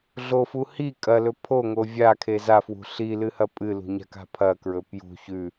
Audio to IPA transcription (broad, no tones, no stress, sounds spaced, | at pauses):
ɮ o f u h i kʼ ɐ l ɵ pʰ o ŋ o vʲ a kʰ e z a f w ṳ ɬ i l ɨ h ɐ pʼ ɨ l ṳ ɲ a̤ k a̤ pʰ ɐ k ɹ ɵ p j ṳ ç ʉ